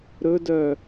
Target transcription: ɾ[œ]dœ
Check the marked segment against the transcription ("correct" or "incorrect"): incorrect